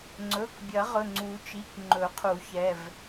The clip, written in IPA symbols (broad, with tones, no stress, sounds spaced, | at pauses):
ŋ͡ǀ ɵ˩˧˩ k bʲ ɐ˨˩˦ ʁ ɵ˩˧˩ ŋ͡ǀ u˨˩˦ t͡ʃ i˩˧˩ k ŋ͡ǃ ɵ˨˩˦ qʰ u˨˩˦ ç ɛ˩˧˩ v